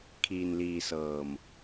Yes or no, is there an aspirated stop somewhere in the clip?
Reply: yes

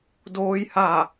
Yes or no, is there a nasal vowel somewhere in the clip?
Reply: no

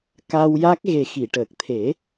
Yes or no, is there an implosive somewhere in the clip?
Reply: no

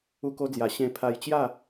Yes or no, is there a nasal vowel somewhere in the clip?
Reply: yes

